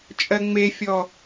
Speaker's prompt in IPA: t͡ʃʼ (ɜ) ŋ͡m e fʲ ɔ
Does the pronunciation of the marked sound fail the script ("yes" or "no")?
no